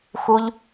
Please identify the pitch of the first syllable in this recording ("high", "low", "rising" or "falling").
high